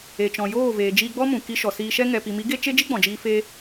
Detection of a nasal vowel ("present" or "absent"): present